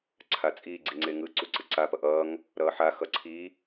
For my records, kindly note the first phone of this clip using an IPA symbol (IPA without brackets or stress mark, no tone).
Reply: ǀʰ